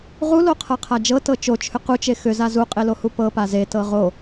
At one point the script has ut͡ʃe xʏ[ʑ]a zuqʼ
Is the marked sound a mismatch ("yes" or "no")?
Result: yes